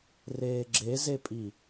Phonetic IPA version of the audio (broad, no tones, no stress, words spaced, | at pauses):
reːɡ͡ǁezepʼi